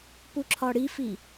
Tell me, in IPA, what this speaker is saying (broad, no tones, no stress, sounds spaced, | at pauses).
p u ǁʰ ɒ ɽ i f i